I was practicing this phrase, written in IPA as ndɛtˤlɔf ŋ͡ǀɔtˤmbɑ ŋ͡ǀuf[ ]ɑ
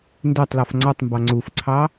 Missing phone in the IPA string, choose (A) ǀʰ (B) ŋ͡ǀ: A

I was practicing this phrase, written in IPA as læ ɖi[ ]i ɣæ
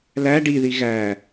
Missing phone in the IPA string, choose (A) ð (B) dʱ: A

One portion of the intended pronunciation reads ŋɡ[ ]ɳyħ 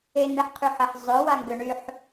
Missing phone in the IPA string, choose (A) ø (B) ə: A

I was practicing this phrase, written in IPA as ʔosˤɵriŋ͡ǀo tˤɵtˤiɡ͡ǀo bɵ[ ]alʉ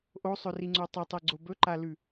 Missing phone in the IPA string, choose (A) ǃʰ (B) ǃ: B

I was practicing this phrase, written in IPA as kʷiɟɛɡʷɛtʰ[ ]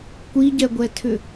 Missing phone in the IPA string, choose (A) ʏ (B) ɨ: A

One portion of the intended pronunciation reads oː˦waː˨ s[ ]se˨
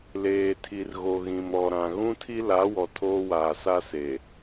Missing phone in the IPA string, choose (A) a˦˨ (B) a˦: B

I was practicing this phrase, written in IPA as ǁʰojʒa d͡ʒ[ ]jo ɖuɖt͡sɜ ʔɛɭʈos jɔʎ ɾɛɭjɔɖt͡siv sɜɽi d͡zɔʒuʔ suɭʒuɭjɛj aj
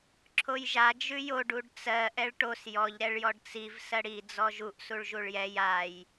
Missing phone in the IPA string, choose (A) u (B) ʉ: B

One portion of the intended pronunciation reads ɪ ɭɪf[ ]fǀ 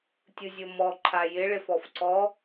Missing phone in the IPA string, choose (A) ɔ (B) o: A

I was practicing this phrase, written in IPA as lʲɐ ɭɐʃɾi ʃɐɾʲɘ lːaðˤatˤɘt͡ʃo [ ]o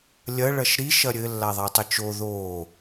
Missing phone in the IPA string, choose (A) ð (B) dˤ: A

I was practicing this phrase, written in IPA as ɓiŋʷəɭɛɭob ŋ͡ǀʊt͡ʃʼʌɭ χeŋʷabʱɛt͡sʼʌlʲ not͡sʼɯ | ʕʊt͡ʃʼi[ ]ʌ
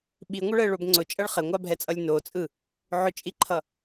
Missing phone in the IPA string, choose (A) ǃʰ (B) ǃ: A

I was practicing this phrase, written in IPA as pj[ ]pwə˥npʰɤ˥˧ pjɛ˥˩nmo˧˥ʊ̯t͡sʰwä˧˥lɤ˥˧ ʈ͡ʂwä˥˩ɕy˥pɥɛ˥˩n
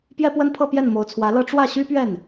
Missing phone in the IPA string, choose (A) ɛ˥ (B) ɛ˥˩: A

